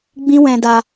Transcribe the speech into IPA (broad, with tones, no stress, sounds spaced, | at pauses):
ɡ͡b ĩ˦ w ɛ̃˧ d a˧